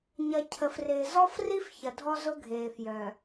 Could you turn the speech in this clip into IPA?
ɲɐ˨ cʰə˨frɪː˨ zɔ˦fri˦f çɐ˨dʱɔ˦zʊ˦ɡʱeː˨f jœ˨

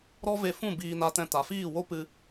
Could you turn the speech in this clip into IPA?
ɾɔ˦ve˧fũ˦˨ biː˧na˧tɛ̃˧ ta˨fiː˦˨ wo˦pɨ˧

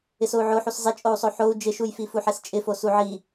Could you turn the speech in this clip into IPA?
ɪsou̯ʕoħus zˤɪt͡ʃʼou̯sˤo ħou̯ d͡ʒɪʃujfi fuħɛst͡ʃʼɪfo suʕi

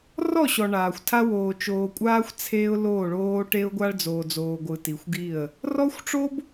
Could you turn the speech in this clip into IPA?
rɔ˦˨ɕɔ˨ ɳaː˨xʷtʰa˦ woː˨t͡ʃoː˨kʷʼaː˦xʷ t͡sʰeː˦ʊ̯loː˦˨ɭoː˦ ʈe˦ʊ̯ɡʷa˦ɭd͡zoː˨d͡zoː˨ ɡʷɯ˨ti˨xʷɡi˦˨ə̯ | rɔ˦xʷ ʈ͡ʂo˦b

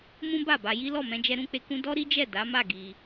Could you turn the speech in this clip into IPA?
mũ˦ba˦˨ba˧ji˦ lɔ˦˨mɛ̃˧d͡ʒɛ˧ ɾũ˦k͡pe˧kũ˦ dɔ˦ɾi˦d͡ʒɛ˦˨ da˨˦ma˦˨ ɡi˧

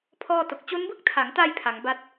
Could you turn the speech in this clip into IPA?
pʰɔː˥˩to˨˩k̚ t͡ɕo˦˥nbɯ˥˩k̚tʰa˩˦ŋta˧j pʰa˩˦ŋba˥˩t̚

